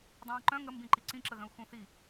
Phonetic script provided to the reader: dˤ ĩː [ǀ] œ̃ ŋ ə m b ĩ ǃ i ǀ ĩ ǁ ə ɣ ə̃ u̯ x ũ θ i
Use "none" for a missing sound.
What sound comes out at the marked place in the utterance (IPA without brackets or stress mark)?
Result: ǃ